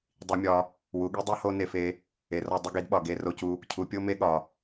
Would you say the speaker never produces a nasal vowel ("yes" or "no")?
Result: yes